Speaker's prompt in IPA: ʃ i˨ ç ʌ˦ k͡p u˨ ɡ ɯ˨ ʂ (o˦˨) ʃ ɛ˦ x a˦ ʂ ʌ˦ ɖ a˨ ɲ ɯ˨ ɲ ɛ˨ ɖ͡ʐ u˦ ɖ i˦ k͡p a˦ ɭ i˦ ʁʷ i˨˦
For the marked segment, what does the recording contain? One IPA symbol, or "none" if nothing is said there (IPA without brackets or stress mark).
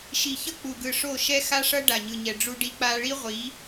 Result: o˦˨